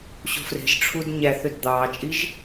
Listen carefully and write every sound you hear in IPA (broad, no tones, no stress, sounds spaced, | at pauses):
ɕ o̤ f r e̤ ʒ ʈ͡ʂʰ u d ɲ æ θ ø d d̪ ɑː t͡ʃʼ i ʒ